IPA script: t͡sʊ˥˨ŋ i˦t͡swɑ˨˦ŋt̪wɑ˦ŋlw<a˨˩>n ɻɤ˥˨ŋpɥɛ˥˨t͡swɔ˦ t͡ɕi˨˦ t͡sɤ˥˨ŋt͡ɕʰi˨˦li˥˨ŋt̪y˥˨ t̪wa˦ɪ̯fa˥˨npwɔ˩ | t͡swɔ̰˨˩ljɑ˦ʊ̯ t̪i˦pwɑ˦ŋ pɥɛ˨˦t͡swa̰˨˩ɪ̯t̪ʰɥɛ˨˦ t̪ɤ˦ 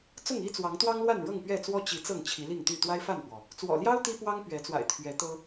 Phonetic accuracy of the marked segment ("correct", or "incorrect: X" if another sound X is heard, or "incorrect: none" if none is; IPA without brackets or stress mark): incorrect: a˥˨